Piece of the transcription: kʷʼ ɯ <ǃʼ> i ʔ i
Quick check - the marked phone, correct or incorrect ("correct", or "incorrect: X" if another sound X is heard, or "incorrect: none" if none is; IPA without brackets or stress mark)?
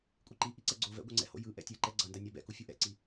incorrect: ǃ